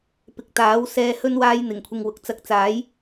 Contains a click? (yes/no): no